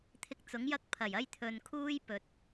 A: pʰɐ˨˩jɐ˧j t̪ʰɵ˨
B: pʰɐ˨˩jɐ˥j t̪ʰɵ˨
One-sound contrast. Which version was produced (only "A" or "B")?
B